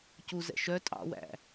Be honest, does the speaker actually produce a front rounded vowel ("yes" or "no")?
yes